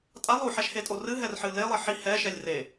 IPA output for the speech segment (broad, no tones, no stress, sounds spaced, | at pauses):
tʼ a lˠ u ħ ɛ ʃ h e tʼ o r ɨ ɦ ɛ r ħ ɨ l e lˠ e ħ i h ɛ ʃ ɛ lʲ r e